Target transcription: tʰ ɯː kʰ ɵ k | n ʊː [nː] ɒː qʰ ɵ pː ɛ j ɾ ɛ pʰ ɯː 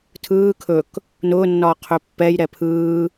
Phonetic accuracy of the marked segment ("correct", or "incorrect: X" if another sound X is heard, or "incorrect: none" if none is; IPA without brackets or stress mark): correct